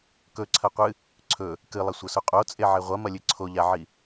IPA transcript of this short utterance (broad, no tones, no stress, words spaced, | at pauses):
kɵǀʰɐqʷɨ | ǀʰɵ | kɨlˠɐsʷɐsu qʼot͡sʼeʕe ʁʷɐmɐlʲɨ ǀʰoʎaʕi